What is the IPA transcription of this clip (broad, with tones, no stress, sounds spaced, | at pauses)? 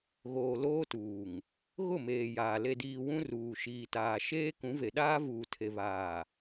ɣ oː˨ l oː˦ t uː˨ ŋ | ɣ ʊ˦˨ m eː˨ j aː˨ l e˨ d iː˨ w ũ˦ r uː˨ ʃ iː˨ t aː˨ ʃ eː˦ k ũ˨˦ v e˨ ɗ aː˦ v uː˨ tʰ e˨ β aː˨